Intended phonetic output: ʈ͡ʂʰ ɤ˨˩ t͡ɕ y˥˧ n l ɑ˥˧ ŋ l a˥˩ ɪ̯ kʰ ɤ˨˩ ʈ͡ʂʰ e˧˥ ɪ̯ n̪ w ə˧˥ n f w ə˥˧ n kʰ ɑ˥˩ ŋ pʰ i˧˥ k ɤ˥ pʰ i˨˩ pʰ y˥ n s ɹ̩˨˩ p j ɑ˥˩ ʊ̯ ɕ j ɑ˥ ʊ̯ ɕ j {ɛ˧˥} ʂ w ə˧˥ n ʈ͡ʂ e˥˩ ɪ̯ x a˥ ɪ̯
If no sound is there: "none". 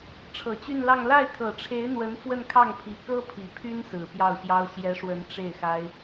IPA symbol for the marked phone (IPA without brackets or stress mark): ɛ˧˥